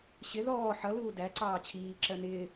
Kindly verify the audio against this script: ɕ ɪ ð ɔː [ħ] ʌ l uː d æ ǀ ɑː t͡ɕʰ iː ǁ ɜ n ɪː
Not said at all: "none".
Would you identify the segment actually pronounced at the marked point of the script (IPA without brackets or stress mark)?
ħ